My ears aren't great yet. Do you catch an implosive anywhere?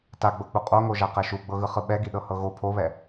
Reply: yes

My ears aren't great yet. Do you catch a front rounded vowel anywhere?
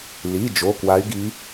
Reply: yes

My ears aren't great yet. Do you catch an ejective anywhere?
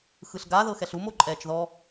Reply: yes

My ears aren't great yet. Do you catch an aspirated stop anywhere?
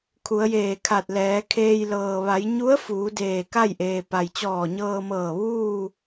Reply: yes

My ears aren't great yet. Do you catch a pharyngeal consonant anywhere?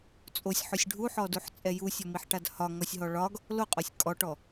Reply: yes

